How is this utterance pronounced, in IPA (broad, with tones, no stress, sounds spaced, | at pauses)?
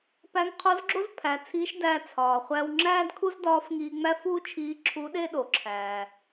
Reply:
p æ˧˥ ŋ qʰ o˧˥ z ɡ͡ǁ o˥ z pʰ æ˩˧ t͡sʰ iː˧˥ ʃ d æː˧ t͡sʰ ɒː˩ χʷ æ˧ w ŋ͡ǁ æː˥ d kʰ u˥ z d ɒː˧˥ f ŋ iː˧ ŋ͡m æ˥ f uː˥ t͡ʃʰ iː˧˥ ǁʰ u˧˥ ɗ e˥ ɗ o˩ ǁʰ æː˩